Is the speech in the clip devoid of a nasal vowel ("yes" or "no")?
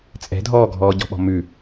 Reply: yes